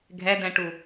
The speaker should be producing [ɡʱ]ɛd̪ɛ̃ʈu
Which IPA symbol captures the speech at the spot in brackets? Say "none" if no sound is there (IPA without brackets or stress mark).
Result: ɡʱ